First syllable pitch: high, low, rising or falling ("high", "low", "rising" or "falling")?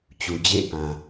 low